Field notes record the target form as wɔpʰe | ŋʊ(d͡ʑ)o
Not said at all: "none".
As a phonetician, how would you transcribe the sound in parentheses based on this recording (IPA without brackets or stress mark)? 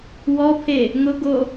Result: ɡ